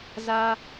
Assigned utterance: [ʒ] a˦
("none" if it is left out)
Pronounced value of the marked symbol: z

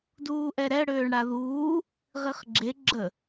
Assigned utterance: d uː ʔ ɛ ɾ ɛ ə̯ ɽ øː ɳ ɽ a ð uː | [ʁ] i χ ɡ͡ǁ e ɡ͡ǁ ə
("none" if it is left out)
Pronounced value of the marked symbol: ʁ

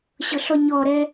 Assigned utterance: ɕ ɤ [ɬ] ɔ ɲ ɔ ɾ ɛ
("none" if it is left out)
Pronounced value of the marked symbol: ɬ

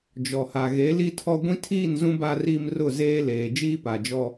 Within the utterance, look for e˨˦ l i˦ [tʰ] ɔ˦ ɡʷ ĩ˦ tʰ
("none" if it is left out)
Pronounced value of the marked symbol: tʰ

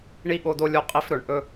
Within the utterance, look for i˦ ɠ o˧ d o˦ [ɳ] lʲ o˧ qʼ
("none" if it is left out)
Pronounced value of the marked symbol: none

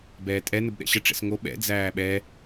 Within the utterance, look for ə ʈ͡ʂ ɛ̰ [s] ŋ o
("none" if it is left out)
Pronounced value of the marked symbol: s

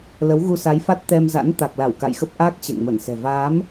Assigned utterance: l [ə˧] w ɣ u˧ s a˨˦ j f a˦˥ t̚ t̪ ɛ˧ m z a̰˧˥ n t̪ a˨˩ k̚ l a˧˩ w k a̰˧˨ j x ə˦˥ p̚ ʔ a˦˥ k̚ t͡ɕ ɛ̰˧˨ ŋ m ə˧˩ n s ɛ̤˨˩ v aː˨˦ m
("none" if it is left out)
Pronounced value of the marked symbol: ə˨˦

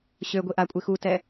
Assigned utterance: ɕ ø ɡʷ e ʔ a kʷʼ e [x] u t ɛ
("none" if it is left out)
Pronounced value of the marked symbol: x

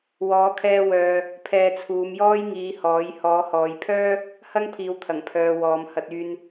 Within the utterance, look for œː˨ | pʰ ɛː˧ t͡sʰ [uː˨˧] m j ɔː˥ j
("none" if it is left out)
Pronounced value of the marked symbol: uː˨˧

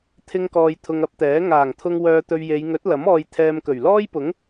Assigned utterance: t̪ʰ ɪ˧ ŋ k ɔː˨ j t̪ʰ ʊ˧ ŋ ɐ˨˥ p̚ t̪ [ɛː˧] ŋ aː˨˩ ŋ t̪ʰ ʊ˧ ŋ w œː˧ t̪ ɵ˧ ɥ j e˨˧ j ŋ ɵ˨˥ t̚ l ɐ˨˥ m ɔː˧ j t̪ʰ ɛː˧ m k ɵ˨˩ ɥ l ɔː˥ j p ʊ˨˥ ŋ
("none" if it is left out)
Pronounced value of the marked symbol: ɛː˨˥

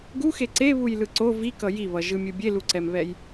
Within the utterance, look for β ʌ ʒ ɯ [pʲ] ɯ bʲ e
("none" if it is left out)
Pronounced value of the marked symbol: mʲ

